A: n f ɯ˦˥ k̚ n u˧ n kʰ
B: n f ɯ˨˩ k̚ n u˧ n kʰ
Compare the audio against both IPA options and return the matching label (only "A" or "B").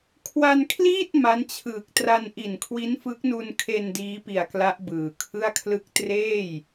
A